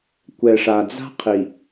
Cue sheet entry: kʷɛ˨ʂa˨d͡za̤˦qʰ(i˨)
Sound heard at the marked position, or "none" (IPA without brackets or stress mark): i˨